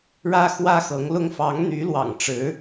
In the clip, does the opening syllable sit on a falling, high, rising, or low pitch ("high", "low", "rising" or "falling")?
high